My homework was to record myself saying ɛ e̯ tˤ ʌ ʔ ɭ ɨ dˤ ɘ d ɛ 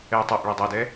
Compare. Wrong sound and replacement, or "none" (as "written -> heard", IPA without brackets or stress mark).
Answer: ɘ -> ɛ